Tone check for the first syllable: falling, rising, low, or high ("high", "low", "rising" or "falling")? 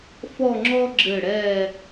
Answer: falling